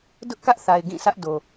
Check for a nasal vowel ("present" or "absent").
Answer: present